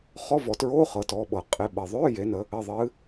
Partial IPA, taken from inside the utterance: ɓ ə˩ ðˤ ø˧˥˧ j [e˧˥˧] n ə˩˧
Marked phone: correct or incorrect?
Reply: incorrect